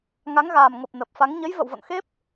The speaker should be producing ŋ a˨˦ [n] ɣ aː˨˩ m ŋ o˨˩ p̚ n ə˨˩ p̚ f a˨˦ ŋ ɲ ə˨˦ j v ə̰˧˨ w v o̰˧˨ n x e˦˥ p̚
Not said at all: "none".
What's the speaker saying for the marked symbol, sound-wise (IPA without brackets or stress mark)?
ŋ